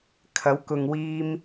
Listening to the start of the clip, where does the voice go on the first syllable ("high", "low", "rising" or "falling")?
rising